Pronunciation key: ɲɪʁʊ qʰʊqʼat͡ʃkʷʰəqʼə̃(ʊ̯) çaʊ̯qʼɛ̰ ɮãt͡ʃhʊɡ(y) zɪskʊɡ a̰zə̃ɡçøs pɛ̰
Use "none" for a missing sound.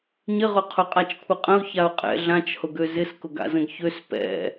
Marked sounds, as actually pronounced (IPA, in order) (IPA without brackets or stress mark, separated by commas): ʊ̯, ø